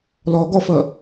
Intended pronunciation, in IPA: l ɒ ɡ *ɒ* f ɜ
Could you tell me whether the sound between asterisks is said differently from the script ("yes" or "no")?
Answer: no